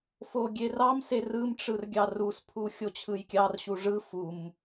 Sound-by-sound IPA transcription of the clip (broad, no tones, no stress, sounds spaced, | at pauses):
f o ɡʲ e r ɑ m s e r ɯ m ʈ͡ʂ ɯ r ɡʲ ɑ r u s pʰ u xʲ o t͡ɕʰ ɯ j kʲ ɑ r ɕ u ʐ ɯ f u m